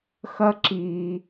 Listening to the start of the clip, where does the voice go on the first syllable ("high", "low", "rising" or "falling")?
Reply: high